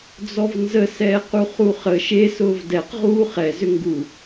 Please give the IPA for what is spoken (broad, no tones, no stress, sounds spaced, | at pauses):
d͡z ɔ v n z ə s ɛː q u χ u χ ə ʃ e s ʊː v d ɛ q ʁ uː χ ɛ z ʏ ŋ ɡ u